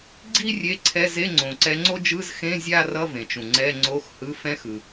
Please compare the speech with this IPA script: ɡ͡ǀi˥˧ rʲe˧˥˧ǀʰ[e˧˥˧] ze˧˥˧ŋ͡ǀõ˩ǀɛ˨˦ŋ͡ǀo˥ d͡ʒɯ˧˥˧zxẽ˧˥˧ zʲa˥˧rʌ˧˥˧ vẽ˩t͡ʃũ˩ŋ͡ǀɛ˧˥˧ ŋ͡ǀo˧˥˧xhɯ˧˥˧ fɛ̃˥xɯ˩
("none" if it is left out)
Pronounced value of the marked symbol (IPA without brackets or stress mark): ɛ˧˥˧